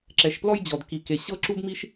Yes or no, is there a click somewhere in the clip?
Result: yes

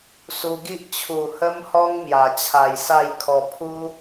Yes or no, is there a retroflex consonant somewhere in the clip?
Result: no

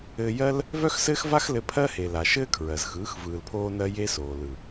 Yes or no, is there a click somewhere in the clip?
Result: no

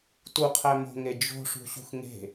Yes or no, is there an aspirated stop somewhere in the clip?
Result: yes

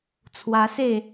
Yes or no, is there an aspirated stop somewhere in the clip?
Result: yes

